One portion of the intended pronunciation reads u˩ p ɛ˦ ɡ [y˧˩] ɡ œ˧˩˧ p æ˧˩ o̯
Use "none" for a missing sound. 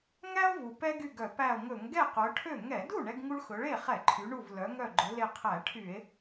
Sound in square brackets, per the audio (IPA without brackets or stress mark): y˧˩